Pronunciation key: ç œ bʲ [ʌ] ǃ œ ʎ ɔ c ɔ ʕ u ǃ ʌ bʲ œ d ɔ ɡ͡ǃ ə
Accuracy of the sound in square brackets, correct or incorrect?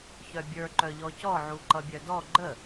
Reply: incorrect